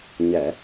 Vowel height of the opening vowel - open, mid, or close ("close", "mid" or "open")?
mid